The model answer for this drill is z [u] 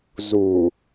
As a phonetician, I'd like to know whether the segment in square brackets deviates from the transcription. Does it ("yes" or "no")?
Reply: no